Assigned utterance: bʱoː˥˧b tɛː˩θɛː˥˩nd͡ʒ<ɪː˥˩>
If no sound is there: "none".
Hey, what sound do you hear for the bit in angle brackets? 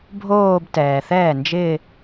ɪː˥˧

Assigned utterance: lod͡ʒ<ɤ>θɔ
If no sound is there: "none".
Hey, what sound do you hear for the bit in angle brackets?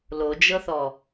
ɤ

